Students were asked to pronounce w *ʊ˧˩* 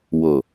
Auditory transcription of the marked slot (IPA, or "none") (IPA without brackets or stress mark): ʊ˧˩